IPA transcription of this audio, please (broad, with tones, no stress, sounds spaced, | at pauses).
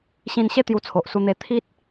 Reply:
ɕ ĩ˧ n ɕ e˥˧ t̪ j u˧ t͡sʰ o˨ ʔ s u˧ n̪ e˧ t̪ʰ i˦ t̚